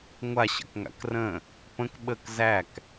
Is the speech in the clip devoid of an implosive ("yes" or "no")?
no